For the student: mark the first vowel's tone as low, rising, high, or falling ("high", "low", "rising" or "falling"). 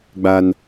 high